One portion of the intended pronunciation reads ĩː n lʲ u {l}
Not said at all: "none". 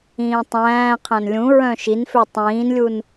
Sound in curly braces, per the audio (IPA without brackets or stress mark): n